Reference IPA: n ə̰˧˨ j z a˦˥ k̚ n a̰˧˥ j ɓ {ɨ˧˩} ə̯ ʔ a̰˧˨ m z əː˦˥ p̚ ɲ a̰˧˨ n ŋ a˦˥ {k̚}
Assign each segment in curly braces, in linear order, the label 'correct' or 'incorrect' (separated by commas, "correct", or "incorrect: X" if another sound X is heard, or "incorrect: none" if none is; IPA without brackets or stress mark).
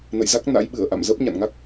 correct, correct